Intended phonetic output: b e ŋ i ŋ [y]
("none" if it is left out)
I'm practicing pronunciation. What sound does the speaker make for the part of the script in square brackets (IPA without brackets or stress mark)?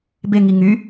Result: y